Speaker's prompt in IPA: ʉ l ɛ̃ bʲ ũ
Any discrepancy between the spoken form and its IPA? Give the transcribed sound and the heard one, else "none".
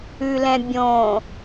ũ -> õ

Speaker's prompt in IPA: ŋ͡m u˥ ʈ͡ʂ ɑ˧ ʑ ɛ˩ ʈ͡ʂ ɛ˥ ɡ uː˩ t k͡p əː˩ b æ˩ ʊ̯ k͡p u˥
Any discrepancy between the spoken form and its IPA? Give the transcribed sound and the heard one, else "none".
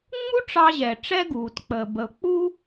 æ˩ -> ə˩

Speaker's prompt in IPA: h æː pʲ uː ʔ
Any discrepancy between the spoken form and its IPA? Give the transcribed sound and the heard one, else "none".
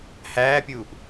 none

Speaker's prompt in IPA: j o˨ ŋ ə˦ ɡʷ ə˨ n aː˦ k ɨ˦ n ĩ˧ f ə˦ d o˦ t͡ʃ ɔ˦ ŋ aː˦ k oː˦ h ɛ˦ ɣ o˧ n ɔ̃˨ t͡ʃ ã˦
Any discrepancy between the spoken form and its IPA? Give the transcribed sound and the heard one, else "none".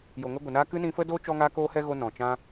none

